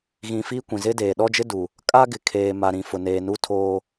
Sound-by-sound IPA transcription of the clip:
ɣĩ˨ fiː˦kʷĩ˨zɪ˦ deː˨ɗɔ˦d͡ʒɪ˦du˨ | kʼa˦ɡɪ˨kʰeː˨ ma˨ɾĩ˨ fʊ˨neː˨nu˦ tʰoː˦

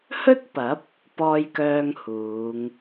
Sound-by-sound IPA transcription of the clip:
hɵ˥t̚pɐ˨˥p̚ | pɔː˧jkœː˧ŋ huː˨˧ŋ

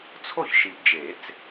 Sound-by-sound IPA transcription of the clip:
t͡sʰo˥˩çʃi˨pd͡ʒe˨˩˦t͡s

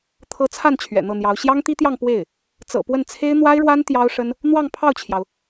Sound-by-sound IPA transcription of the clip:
t̪ʰɤ˧˥t͡sʰa˥˩n t͡ɕʰɥɛ̰˨˩n̪ɤ˥˩n̪jɑ˧˥ʊ̯ ɕjɑ˥ŋt̪i˥t̪jɑ˥˧ŋ pwe˥˩ɪ̯ | t͡sɤ̰˨˩pwə˥˩n t͡sʰe˥ɪ̯ n̪wa˥ɪ̯ɻwa˥n t̪jɑ˥ʊ̯ʂə˥n | n̪wɑ˥˧ŋpʰɑ˥˩ʊ̯t͡ɕʰjɑ˩ʊ̯

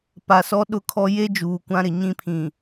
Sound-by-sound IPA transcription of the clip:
pa˨sɔ˦ ɗʊ˦kʰɔ˦ je˦ d͡ʒuː˨kʷã˦ɾɪ˨ ɲĩ˦pʰĩ˨

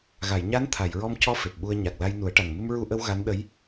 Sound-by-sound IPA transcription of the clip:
ɣa˨˩˨j ɲa˧˥nt̪ʰa˨˩˨jɹɔ˧m cɔ˧ fe˨˩p̚ɓu˧ə̯ ɲa˨˩k̚la˧j nu˨˩˦ə̯ʈa˨˩ŋ mɨ˧mɹu˧ʔə˧w ɣa˧˥nɗə˧˥j

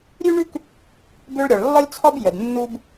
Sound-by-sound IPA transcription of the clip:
ɾʲʉ˥ɳʉ˥k | bʏ˥ɭɾʲɒ˩ɭ lːɒ˥lʲt͡sʰɒ˥b jə˩dnːu˥b

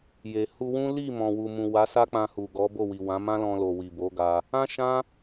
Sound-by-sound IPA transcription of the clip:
je˨ hu˧wũ˦ li˦˨mɔ̃˨wu˨mũ˨ wa˨˦ sa˦k͡pã˧hu˨ ɡɔ˨˦bo˦˨wi˨ wã˨˦mã˦lɔ̃˧lo˨ wi˨bo˨˦ ɡa˧ | ã˦ʃã˦

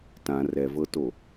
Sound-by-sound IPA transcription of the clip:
tã rɛ vɤto

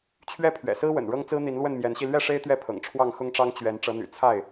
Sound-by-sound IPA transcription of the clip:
t͡ɕʰɥɛ˦pʰɥɛ̰˨˩sɹ̩˦wə̰˨˩n ɻɤ˦ŋt͡sɹ̩˦n̪i˨˦nlwə˥˨n mjɛ˨˦nɕi˧ lɥɛ˥˨ʂe˦ɪ̯ t̪ɥɛ˥˨pʰɤ̰˨˩ŋ ʈ͡ʂʰwɑ˥˨ŋxʊ˦ŋʈ͡ʂɑ˦ŋ t͡ɕɥɛ˨˦n ʈ͡ʂɤ˨˦n̪y̰˨˩t͡sʰa˥˨ɪ̯

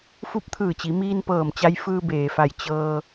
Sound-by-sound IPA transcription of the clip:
fu˧˥p̚t̪ʰɯː˧˩t͡ɕi˩˧ miː˧npɤː˧˩mt͡ɕa˧j fɯː˧beː˩fa˧˩j t͡ɕɤː˧

